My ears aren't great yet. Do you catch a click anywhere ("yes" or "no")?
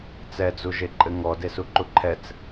yes